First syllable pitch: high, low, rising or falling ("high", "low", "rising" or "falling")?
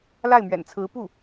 falling